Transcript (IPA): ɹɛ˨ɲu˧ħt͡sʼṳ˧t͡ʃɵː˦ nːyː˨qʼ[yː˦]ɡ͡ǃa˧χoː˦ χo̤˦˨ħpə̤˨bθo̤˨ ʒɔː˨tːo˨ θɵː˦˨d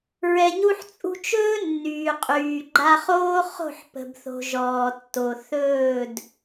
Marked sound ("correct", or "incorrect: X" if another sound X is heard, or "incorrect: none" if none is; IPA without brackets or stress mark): incorrect: yː˨